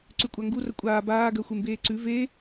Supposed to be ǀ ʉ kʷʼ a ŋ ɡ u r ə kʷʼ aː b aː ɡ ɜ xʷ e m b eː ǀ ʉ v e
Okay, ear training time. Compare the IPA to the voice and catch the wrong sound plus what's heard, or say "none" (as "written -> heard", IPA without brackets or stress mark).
none